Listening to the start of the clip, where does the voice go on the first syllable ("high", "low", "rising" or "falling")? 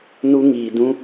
high